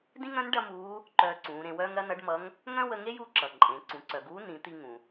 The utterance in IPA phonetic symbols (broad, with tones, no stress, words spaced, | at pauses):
dĩ˥ŋœ̃˧˥n ɖɐ˥muː˧˥ | ǃœː˧ǀũː˩˧ɾẽ˧wœː˥ŋ ɾɐ˧˥nʌ˧˥ɖmʌ˧˥ŋ | ŋœ̃˥wə˧ŋe˥j u˧˥ǁʌ˩ ǃʼẽ˩˧ ǀũ˩ǀœ˩ɡuː˧˥ nĩ˩˧t̪i˧ ŋũ˩